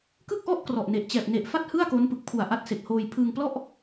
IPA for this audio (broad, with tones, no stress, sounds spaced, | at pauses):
k ɯ˥˩ k̚ ʔ ɔ˥˩ ʔ k r ɔ˨˩ ʔ n e˨˩ ʔ t͡ɕ ɛː˨˩ p̚ n e˨˩ ʔ f a˥˩ t̚ h ɯ˥˩ a̯ k o˦˥ n p ɯ˨˩ k̚ pʰ u˨˩ a̯ ʔ a˦˥ t̚ s e˨˩ k̚ h oː˧ j pʰ ɯː˧ ŋ p l ɔ˥˩ ʔ